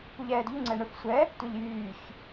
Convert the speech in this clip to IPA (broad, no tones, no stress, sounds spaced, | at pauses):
p u ʎ ɛː d ʎ u ŋ͡ǀ ɛ ɳ œ f sʷ ɛ | tʷ ɛ ʎ j yː ç